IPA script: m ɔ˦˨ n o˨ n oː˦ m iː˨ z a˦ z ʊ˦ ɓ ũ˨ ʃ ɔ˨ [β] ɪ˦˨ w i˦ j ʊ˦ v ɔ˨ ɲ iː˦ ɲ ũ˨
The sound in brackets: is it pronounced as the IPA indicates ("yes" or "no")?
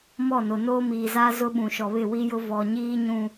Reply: yes